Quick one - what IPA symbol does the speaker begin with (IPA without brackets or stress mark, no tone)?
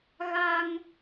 ɣ